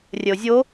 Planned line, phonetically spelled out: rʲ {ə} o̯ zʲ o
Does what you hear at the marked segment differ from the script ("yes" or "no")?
no